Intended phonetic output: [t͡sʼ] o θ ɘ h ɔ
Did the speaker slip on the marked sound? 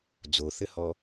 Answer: yes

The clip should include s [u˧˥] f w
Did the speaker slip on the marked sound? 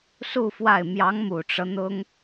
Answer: yes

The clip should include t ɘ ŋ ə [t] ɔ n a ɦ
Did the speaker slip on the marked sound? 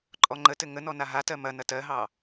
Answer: yes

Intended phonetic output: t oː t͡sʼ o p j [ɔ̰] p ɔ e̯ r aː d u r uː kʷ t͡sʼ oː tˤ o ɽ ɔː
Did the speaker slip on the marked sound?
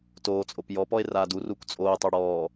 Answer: yes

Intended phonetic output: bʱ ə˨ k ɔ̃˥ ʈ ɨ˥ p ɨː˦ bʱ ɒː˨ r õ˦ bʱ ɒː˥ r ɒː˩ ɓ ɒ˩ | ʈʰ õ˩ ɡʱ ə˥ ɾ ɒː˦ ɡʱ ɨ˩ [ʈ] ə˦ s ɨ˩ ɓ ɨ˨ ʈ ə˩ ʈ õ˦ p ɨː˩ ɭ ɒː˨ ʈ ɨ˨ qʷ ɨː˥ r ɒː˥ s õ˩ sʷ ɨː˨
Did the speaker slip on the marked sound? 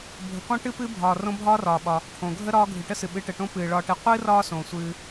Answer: no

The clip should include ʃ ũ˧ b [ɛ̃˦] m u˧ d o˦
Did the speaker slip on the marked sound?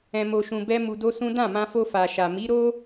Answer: yes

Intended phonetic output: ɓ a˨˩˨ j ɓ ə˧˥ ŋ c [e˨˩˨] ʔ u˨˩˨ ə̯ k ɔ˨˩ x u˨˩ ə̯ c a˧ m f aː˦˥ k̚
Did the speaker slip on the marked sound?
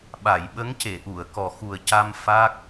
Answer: no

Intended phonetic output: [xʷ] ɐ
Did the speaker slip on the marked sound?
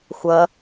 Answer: no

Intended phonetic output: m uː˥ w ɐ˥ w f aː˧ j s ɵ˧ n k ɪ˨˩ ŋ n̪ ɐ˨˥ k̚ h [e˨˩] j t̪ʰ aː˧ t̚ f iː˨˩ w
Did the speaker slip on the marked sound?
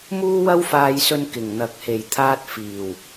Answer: no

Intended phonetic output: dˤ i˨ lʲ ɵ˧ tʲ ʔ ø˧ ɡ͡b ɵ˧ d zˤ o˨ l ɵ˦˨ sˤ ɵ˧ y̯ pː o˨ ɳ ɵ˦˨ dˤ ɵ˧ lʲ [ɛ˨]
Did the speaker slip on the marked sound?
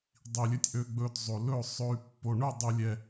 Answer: yes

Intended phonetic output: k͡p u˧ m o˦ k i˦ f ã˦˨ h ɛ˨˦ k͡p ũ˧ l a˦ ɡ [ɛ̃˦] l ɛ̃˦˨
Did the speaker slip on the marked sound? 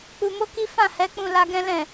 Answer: no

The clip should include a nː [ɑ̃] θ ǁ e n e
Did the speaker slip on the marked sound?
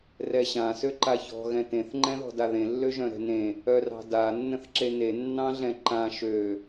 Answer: yes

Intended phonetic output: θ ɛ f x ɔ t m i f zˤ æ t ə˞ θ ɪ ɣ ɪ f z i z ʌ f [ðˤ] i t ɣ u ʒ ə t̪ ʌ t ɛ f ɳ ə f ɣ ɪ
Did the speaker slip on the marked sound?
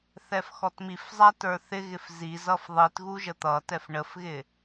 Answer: no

